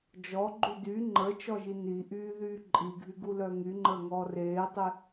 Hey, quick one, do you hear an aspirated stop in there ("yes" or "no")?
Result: no